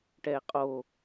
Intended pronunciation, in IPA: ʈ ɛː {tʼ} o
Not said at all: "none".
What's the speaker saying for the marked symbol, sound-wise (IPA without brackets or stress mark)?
qʼ